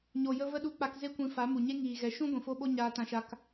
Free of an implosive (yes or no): no